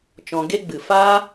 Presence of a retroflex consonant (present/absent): absent